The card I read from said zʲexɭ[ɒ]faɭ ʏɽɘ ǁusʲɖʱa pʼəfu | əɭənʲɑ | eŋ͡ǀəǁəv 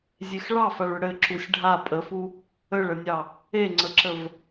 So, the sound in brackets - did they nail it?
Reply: no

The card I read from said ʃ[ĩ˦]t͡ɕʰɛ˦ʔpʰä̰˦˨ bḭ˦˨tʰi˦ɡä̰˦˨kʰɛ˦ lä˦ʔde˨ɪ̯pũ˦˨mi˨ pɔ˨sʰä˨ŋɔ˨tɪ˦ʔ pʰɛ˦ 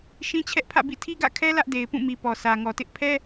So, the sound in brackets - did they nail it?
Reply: yes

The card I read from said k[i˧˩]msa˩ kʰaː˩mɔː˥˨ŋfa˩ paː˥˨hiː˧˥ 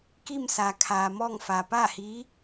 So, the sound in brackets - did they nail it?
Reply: no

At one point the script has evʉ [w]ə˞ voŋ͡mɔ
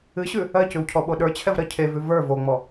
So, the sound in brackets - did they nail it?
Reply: no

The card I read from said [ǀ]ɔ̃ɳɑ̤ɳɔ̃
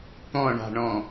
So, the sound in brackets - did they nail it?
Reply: no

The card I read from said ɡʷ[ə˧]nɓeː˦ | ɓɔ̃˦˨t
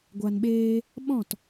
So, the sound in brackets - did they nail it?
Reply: no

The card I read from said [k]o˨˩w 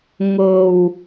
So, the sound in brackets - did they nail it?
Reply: no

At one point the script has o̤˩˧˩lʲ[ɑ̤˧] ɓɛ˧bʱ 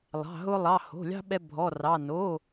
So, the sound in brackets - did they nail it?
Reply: yes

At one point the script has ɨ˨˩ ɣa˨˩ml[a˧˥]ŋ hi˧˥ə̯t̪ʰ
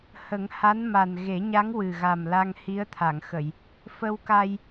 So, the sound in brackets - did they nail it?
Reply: no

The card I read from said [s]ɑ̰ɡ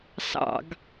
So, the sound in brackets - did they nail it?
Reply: yes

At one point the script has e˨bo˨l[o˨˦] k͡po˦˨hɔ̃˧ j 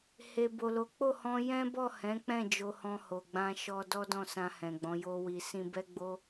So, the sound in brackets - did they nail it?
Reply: yes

